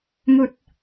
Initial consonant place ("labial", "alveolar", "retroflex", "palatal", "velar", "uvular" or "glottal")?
velar